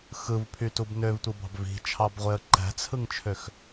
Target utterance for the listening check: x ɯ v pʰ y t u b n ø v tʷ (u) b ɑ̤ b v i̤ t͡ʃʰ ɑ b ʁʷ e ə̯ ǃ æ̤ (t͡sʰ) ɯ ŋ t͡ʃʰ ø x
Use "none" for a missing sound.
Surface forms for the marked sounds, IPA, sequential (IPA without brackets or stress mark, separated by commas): ɯ, t͡sʰ